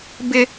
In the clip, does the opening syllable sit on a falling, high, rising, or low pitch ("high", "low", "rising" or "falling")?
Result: high